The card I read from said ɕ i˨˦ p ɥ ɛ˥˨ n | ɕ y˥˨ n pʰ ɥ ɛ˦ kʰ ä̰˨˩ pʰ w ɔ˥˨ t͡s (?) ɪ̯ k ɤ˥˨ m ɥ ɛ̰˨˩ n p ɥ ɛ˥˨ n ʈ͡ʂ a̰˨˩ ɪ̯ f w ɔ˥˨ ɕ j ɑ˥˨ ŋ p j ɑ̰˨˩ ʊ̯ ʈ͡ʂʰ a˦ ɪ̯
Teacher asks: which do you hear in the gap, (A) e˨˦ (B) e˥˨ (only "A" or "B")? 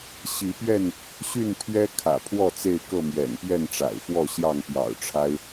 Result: B